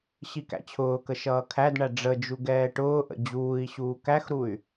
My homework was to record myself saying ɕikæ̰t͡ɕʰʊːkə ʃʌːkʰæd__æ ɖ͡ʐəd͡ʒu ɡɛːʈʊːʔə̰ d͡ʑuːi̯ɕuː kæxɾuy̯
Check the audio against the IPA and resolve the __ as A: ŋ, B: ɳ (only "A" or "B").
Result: B